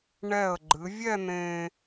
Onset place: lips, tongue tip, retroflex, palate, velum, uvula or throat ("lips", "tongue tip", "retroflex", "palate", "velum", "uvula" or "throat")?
retroflex